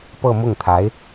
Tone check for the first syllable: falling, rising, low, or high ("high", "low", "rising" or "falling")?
falling